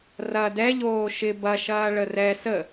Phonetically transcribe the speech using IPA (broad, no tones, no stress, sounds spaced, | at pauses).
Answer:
r ɐ d ɛ ʎ oː ʃ ɪ b ɐ ʃ ɐː ɭ ə r ɛ s ə